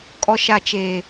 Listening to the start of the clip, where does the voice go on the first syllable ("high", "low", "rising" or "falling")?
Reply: high